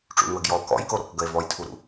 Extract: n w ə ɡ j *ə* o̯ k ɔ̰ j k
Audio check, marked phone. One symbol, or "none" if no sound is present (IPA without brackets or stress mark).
ɔ